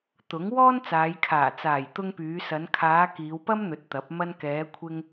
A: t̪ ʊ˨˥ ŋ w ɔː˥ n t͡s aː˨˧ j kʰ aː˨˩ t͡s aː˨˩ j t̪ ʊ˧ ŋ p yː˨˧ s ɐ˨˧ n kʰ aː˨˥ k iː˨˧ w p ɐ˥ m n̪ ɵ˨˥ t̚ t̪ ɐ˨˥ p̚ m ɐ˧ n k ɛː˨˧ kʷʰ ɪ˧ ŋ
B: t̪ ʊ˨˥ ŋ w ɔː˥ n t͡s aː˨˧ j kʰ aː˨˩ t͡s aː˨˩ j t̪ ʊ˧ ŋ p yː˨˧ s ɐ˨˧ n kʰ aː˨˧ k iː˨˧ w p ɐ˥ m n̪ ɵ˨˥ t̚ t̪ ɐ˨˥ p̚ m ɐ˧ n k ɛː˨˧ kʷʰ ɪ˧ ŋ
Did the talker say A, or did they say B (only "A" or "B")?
B